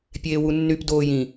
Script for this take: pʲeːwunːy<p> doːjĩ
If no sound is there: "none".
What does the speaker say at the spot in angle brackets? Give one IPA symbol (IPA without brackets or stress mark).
p